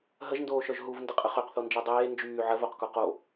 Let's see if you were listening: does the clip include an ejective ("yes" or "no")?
yes